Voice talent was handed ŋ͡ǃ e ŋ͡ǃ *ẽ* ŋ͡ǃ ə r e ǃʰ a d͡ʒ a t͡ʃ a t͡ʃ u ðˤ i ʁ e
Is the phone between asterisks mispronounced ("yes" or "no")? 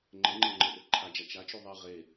yes